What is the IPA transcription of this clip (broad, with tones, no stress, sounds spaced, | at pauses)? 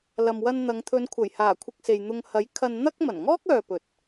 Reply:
l ɐ˨ m w ɐ˧ n n̪ ɐ˨˧ ŋ t̪ʰ ɵ˨˧ n kʷʰ ɐ˨˩ j h aː˨˩ kʷʰ ɪ˧ k̚ s e˨ j n̪ ʊ˧ ŋ h ɐ˨˥ j kʰ ɐ˧ n n̪ ɐ˥ k̚ m ɐ˨˩ n ŋ ɔː˥ k̚ œː˨ p ɵ˨ t̚